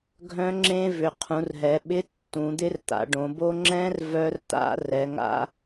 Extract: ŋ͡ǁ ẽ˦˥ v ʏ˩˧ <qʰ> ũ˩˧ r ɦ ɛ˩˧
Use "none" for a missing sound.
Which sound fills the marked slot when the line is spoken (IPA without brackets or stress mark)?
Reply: qʰ